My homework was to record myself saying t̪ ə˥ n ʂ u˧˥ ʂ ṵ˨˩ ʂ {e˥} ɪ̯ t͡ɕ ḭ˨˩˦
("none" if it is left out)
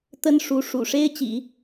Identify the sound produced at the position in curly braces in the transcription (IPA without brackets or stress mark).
e˥